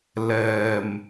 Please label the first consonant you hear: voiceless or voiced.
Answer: voiced